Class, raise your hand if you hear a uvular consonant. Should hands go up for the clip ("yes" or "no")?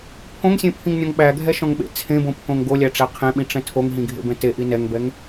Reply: yes